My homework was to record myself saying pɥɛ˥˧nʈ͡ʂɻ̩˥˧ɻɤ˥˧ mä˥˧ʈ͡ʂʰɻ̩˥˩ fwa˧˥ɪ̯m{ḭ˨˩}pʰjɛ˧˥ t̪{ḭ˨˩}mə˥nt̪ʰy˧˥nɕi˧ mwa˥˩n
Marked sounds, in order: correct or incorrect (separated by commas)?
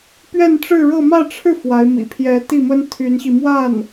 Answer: correct, incorrect